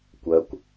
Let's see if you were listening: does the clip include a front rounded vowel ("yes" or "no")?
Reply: yes